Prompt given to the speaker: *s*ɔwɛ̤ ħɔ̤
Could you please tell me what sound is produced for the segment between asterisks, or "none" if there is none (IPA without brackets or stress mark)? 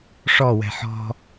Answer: ʂ